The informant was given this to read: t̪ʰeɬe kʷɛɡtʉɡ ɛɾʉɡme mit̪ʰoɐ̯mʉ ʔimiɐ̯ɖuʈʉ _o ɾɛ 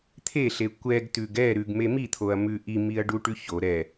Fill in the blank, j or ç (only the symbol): ç